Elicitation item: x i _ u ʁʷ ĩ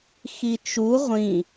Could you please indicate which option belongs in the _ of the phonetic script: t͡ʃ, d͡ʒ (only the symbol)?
t͡ʃ